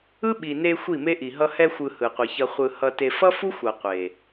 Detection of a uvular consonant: present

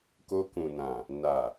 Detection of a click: absent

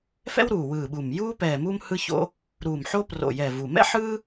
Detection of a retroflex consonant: absent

